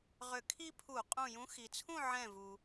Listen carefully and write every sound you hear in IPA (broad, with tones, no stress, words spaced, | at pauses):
ʁʏ˧˩kʰi˥pʰu˧˩˧ qʼũ˧˩jũ˨˥xi˩t͡sʰũ˥˨ ʕɛ̃˧˩vu˩